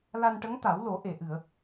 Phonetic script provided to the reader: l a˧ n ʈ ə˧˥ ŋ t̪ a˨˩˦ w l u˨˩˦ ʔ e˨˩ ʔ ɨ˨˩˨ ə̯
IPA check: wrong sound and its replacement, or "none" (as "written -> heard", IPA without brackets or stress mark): u˨˩˦ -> o˨˩˦